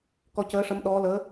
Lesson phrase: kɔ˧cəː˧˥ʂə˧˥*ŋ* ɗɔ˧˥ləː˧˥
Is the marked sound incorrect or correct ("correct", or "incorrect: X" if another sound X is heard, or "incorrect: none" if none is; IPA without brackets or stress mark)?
incorrect: m